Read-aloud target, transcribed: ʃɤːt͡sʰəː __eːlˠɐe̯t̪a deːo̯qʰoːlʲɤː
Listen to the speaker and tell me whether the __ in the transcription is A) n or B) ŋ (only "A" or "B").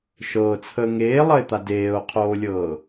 B